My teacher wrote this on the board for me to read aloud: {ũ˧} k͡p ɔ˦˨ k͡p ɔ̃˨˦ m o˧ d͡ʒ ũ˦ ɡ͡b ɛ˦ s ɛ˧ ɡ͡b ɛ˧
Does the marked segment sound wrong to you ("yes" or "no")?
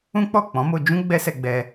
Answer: yes